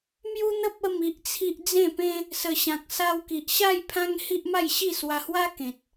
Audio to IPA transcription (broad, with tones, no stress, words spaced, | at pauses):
mju˦n̪ə˦p̚ ə˥˧mi˦ʔt͡sʰi˦ʔ d͡zẽ˥˧pẽ˦ | sə˨˩ɕã˨k̚sa˧wki˨ʔ ɕa˥˧j pʰã˦ŋhi˦ʔma˥˧jɕi˥˧ swa˧hwa˦kẽ˨t̚